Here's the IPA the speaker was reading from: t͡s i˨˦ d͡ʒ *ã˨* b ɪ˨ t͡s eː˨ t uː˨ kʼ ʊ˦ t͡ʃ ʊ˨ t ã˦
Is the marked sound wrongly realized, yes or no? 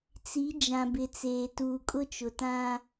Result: no